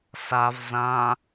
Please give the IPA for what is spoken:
s a v z ã

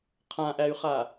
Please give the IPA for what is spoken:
qʰ ã ʔ æ y̯ χ a

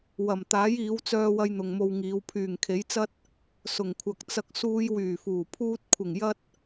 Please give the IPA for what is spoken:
w ɐ˨˩ m t̪ aː˨˥ j iː˨˧ w t͡s œː˧ w ɐ˧ j n̪ ʊ˨ ŋ m o˧ w ŋ iː˨˧ w pʰ yː˨˩ ŋ kʰ e˨˥ j t͡s ɐ˥ t̚ | s ʊ˨˩ ŋ kʷʰ ɐ˨ k̚ t͡s ɐ˧ k̚ s uː˧ j w yː˨˩ f uː˨˩ pʰ uː˧ t̚ kʷʰ ɪ˨˩ ŋ j ɐ˥ t̚

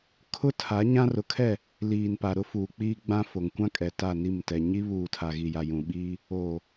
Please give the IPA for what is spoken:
kʰ ʊ˦ tʰ a˨˦ ɲ ã˦ r ʊ˨ kʰ ɛ˦˨ | l iː˨ n p a˨ ɾ ʊ˦ f uː˨ k͡p iː˦ ɡ͡b ã˦ f o˨ ŋ kʷ ã˦ kʼ ɛ˨ t a˦˨ n i˦˨ m t ɛ˨ ɲ i˦ β uː˨ tʰ a˨ ɣ i˨ j a˨ j ũ˨ ɓ iː˦ | oː˨

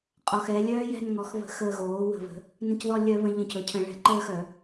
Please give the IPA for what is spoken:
qʼ ɔ˩˧˩ x ɛ˩˧ lʲ œː˦˥ j ɛ̤˦˨ n ŋ ɔ˩˧ x β ə̤˧˩˧ x əː˦˨ ɣ oː˩˥ w ə̤˧˩˧ β ə̤˩˧ | n ə̃˦˨ c ð ɔ˦˨ lʲ œ˧˩˧ β ə̃˩˧ ʎ ə̃˧˩˧ c ɵ˩˧˩ cʰ ə̃˧˩˧ ɭ ɛ̤˧˩˧ ǃ əː˦˨ x œ˧˩˧

